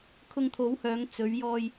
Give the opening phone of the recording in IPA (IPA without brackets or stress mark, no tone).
kʰ